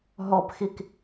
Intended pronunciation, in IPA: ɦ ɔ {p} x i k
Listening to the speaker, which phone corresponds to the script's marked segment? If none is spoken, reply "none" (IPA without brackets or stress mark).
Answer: p